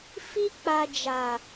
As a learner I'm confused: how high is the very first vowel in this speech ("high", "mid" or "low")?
high